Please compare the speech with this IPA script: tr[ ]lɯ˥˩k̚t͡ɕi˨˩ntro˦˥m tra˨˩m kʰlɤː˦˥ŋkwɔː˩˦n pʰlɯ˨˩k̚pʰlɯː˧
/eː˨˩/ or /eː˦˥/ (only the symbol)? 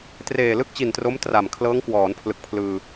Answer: eː˨˩